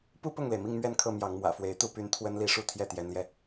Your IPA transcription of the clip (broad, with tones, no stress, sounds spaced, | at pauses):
p u˥ p ʊ˥˩ ŋ l e˩ ɪ̯ m i˥˧ ŋ m ɥ ɛ˥˧ n kʰ ɤ˥˩ m j ɑ˧˥ ŋ m w ä̰˨˩ f w e˧˥ ɪ̯ t̪ u˥˩ p y˧˥ n t̪ʰ w ə˥ n l i˥˧ ʂ u˥˧ t̪ʰ j ɛ˥˩ t̪ j ɛ˧˥ n l j ɛ˧